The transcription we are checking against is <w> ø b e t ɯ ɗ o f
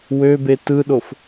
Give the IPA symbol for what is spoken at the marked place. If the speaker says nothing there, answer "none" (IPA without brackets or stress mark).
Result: w